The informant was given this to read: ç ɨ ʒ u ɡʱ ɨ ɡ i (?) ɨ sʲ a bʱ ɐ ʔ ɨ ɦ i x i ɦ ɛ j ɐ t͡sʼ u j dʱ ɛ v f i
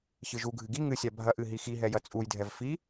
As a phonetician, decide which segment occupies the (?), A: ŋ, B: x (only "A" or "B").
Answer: A